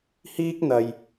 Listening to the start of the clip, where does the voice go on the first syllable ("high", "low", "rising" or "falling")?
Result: high